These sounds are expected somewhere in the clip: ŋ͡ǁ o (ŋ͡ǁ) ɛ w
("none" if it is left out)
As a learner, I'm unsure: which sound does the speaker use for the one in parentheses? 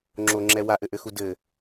ŋ͡ǁ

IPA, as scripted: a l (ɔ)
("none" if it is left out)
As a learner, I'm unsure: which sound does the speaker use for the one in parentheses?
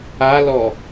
ɔ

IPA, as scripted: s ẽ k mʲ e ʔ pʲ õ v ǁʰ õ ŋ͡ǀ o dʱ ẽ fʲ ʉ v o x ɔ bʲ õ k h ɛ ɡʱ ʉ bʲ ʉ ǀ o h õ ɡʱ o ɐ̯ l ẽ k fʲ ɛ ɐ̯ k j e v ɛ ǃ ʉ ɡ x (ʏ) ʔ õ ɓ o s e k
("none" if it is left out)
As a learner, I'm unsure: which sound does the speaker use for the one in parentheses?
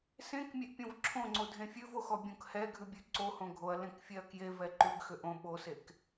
ʏ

